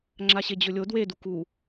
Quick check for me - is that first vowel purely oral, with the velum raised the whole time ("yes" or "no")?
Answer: yes